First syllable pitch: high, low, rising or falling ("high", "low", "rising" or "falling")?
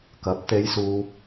rising